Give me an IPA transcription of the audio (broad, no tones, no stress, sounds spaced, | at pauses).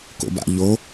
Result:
k o̰ b a̰ ʎ o